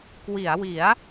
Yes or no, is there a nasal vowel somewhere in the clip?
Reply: no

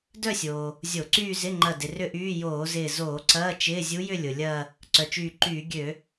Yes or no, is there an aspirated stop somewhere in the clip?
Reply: no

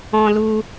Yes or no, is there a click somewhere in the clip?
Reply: no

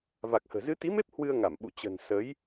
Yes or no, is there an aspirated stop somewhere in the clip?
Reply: no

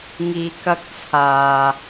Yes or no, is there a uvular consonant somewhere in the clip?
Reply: no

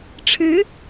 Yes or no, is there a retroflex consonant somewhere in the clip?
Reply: yes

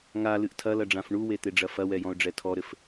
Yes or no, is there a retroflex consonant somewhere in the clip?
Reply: yes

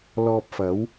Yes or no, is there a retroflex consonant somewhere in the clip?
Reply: no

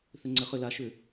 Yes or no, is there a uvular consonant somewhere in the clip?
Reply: yes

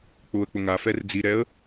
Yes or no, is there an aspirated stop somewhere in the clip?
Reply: no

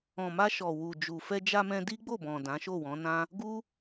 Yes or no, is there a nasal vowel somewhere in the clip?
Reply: yes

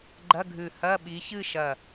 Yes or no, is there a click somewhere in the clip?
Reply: yes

